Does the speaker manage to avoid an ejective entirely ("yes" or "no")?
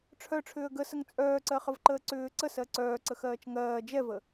no